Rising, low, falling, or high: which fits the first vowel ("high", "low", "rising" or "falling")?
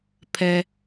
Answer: low